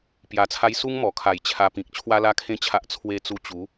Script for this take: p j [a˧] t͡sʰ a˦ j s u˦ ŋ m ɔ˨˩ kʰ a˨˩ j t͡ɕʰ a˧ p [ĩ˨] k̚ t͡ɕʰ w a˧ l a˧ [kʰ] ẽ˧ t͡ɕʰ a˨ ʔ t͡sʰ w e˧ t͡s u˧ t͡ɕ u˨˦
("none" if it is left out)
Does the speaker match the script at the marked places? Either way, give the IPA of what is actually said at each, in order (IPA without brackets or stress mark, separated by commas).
a˧, ĩ˨, kʰ